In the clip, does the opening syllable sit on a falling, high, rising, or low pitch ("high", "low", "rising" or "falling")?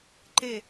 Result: falling